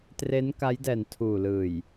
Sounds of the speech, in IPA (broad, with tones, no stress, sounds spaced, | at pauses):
t r e˦˥ n k a˦˥ j d ɛː˨˩ n tʰ uː˨˩ l ɯː˨˩ j